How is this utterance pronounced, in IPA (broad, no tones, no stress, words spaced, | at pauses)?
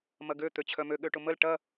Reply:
mɐɡø t̪øt͡ɕʰœmø ɠøʈʊməl ʈɐ